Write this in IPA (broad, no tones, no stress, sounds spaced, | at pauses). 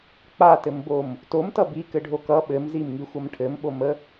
k͡p a t ɘ m b o m | t o m t ʌ b i k ɘ ɖʱ o k ʌ ɓ ɘ m z i m ŋ i xʷ ʌ m ʈʰ ɘ m ɓ o m ə